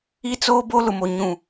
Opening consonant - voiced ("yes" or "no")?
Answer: no